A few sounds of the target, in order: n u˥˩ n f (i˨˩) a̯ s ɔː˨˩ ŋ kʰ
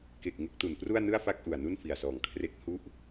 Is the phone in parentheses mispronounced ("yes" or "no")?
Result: no